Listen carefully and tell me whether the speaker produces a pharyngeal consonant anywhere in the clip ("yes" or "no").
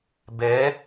no